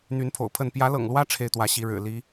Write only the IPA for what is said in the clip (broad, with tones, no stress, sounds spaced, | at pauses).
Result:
n̪ y˨˦ n pʰ o̰˨˩ ʊ̯ pʰ ə˥˨ n p j ä˨˦ l ɤ̰˨˩ ŋ l w ä˦ ʈ͡ʂʰ e˦ ɪ̯ t̪ w ä˨˦ ɕ i˨˦ ɻ ɻ̩˨˩ l i˨˦